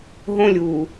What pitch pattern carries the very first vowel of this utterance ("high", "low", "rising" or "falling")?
high